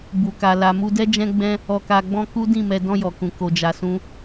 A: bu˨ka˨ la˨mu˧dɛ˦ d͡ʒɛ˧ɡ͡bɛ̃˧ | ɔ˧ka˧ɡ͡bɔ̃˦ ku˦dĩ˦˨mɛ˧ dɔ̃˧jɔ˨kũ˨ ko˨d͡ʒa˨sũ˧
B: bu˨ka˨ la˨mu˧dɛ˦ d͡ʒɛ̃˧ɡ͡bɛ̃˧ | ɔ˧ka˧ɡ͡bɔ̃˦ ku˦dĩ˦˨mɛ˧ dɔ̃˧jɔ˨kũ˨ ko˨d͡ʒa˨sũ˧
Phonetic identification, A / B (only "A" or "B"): B